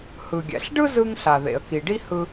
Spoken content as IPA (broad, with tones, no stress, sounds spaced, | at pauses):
h ɯ˩ ɡʲ ɛ̰˩ ɬ ɖ ɯ˥ z ɯ˧ ŋ ɬ a˩ ð ḛ˩ ə̯ k i˩ ɖ i˥ h ɯ˧